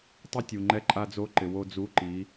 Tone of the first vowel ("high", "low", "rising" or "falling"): high